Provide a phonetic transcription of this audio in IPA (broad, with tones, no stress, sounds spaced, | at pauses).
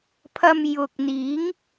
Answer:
pʰ ɐ˧ m j ʊ˨ k̚ n̪ iː˨˥ ŋ